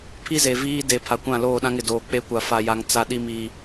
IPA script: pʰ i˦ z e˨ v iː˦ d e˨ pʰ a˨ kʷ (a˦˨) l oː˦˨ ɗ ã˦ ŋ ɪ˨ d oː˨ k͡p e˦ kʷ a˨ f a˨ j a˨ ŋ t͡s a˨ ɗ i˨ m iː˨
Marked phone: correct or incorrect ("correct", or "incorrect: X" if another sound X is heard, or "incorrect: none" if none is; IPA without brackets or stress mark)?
incorrect: ã˦˨